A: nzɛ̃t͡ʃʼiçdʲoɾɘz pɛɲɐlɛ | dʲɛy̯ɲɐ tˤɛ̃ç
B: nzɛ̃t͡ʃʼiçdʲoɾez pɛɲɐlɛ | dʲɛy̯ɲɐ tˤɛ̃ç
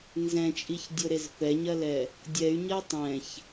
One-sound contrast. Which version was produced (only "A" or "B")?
B